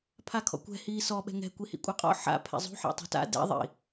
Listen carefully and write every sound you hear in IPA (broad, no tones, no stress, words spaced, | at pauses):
pʰakʰɔ̰kʷɛ̤ hiːsɔ ɓɛ̤ŋɛ̤ kʷihḭkʷʼaqʼɔ̰ ħa̰ pʰɛ̰zˤṳ ħa̰tˤṳta̰ dɛ̰ ðˤḭ